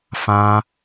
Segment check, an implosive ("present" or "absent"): absent